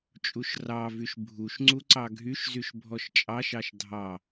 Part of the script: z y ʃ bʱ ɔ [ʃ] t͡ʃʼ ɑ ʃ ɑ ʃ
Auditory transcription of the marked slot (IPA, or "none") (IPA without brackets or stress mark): ʃ